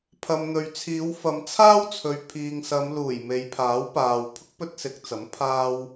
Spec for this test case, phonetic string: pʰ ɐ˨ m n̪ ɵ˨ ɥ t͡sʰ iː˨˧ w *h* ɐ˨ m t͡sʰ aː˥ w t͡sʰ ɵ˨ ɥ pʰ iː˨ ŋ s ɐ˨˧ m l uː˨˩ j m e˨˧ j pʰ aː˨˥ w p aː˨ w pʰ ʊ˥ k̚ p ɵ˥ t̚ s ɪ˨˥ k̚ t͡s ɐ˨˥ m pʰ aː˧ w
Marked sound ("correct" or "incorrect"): incorrect